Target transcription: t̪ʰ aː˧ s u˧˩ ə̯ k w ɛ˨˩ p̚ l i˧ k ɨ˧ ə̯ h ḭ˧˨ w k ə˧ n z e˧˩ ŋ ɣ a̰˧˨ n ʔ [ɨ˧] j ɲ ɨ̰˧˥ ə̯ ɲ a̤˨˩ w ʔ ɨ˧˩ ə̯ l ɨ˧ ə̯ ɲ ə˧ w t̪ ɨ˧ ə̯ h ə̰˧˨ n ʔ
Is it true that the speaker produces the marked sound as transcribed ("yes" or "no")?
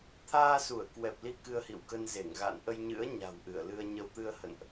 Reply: no